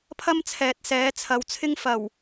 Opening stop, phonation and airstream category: aspirated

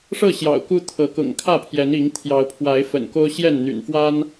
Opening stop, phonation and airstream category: plain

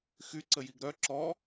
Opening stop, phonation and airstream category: click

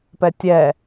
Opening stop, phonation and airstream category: plain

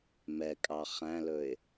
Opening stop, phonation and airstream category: ejective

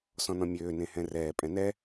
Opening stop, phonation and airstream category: ejective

